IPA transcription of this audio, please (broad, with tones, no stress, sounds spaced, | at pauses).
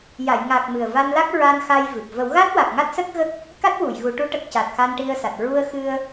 j a˨˩˨ j ŋ a˨˩ k̚ m ɨ˨˩ ə̯ v a˧ n l a˦˥ k̚ ɹ a˧ n x a˧ j v ɨ˨˩ p̚ v ə˨˩˦ w ɣ a˦˥ t̚ w a˨˩ k̚ ŋ a˦˥ t̚ s ə˦˥ k̚ ɣ ə˦˥ k̚ | k a˦˥ t̚ w u˨˩˨ j ɣ u˨˩˦ ʈ u˧˥ ʈ ə˨˩ k̚ c a˨˩ t̚ x a˧ n ʈ i˧ ə̯ s a˨˩ t̚ ɹ u˧ ə̯ x ɨ˧ ə̯